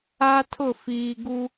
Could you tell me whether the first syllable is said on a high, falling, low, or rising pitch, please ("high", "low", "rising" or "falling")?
high